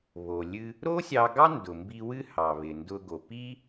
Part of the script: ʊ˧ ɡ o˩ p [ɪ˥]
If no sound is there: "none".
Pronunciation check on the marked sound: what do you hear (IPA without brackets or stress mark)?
i˥